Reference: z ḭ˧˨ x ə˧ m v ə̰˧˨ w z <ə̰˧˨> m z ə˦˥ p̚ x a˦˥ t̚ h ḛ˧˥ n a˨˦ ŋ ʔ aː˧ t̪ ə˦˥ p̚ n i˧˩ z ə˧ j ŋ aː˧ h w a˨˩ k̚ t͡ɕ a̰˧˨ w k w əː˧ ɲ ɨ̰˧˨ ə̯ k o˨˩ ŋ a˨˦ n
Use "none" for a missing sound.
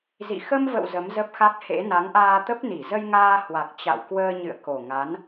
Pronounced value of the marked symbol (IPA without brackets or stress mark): ə˨˦